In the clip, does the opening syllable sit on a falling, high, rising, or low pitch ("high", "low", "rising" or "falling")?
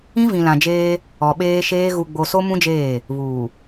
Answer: high